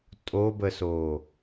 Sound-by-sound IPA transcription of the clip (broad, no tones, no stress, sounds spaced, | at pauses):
tʼ o b ə s oː